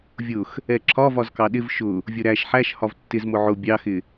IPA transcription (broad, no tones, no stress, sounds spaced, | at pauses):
vʲ ʊ x | ɛ ǁʰ ɒ v ɒ z k ɑ ɗ ɪ v ʃ ʊ | vʲ ʊ ɾ æ ʃ ħ æ ʃ h ɒ v tː ɪ z m ʊ ʕ ʊ bʲ ɑ x ɪ